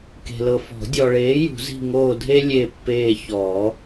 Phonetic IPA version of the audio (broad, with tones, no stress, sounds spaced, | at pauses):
k e̤˨ l ɤ˨ f ɔ̤˨˩˦ dʲ ɔ˨ ɭ eː˨˥ j ṳ˨˩˦ z i̤˦˨ ŋ oː˦˨ dʱ e˥ lʲ e˦˨ pː eː˦˨ ç ɔː˨˩˦